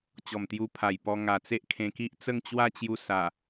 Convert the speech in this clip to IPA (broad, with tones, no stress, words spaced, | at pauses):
t͡ɕɔ˨˩mt̪ju˧pʰa˨˩j pɔ˧ ŋa˨˩t͡se˦ʔ kʰẽ˧ki˦ʔ t͡sə˥˧ŋt͡ɕwa˥˧t͡ɕju˧ sa˨˩